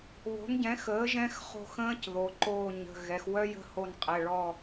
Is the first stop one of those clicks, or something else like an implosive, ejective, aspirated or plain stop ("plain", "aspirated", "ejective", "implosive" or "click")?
plain